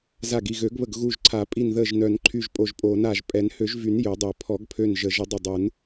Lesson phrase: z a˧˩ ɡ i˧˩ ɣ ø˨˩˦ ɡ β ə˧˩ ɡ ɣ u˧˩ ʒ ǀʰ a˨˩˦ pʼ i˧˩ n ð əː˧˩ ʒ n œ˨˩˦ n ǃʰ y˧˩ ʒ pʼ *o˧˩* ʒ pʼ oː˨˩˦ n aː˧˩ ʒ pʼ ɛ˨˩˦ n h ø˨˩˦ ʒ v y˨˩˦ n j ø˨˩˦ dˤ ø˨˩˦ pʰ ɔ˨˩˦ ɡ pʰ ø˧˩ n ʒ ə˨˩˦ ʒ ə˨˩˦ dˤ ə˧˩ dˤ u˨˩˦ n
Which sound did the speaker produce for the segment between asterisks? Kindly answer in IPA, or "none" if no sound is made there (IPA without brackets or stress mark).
o˧˩